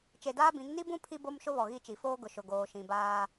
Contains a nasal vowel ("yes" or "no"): yes